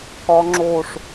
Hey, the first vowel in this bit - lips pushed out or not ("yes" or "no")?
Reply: yes